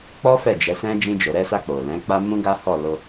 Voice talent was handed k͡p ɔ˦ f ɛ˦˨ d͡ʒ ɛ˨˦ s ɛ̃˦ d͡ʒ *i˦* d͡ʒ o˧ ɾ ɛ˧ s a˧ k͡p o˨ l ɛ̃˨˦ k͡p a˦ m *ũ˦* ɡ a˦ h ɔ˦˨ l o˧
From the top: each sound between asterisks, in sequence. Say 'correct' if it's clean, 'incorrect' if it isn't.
incorrect: ĩ˦, correct

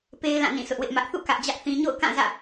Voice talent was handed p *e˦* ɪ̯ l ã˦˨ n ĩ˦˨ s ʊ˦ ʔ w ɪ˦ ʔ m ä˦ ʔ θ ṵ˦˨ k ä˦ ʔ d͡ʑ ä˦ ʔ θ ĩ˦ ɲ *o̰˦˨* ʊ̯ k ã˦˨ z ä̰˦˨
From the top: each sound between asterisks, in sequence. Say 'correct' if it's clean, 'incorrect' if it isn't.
correct, correct

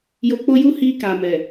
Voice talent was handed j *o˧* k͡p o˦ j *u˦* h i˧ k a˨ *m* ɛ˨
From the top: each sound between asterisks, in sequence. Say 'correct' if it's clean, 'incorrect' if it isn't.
correct, correct, correct

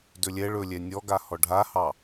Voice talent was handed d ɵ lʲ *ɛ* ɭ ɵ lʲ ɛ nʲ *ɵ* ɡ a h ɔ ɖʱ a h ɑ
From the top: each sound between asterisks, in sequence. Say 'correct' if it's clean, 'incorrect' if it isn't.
correct, incorrect: ɔ

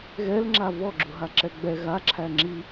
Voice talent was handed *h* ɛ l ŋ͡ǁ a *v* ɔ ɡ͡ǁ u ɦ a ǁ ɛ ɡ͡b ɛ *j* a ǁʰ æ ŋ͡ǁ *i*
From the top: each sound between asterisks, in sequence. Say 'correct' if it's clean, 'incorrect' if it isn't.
incorrect: ɣ, correct, incorrect: ɣ, correct

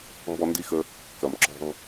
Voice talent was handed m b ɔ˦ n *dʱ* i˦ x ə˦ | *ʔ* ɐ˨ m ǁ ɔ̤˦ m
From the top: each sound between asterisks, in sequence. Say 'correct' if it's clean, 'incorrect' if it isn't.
incorrect: d, incorrect: k

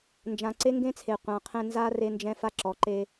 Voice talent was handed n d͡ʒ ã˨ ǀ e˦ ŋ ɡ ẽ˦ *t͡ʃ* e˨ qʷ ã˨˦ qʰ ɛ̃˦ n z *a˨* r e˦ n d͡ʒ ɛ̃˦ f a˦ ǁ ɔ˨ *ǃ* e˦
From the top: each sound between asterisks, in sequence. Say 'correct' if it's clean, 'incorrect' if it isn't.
incorrect: t͡sʰ, incorrect: a˦, correct

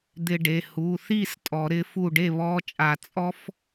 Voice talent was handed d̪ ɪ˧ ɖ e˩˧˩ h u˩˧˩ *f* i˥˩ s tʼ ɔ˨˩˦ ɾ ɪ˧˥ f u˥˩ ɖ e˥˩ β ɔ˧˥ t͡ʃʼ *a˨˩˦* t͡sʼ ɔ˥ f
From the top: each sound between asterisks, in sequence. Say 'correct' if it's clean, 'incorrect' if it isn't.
incorrect: θ, correct

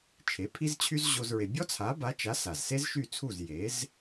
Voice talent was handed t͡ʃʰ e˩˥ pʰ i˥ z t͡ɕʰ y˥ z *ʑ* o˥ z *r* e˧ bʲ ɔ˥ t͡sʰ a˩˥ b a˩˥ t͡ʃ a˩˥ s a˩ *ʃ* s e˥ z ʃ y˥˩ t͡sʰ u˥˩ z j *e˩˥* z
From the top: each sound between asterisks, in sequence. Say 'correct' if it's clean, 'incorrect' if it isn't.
correct, incorrect: ɹ, incorrect: z, correct

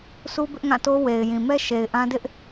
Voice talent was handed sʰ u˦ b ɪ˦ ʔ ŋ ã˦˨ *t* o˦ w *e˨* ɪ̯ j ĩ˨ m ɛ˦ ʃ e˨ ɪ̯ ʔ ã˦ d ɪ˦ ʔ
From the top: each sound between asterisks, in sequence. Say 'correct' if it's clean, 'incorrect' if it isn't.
correct, correct

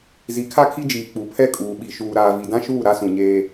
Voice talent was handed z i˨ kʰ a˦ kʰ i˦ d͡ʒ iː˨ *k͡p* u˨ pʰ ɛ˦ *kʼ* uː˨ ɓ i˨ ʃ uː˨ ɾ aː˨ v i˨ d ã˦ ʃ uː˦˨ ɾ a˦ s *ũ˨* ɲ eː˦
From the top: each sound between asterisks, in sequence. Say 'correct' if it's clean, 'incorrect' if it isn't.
correct, correct, correct

